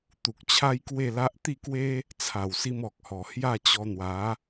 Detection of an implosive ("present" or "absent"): absent